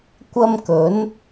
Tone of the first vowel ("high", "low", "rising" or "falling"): high